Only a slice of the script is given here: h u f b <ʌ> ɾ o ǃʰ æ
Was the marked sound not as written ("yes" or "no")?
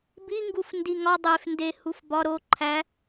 yes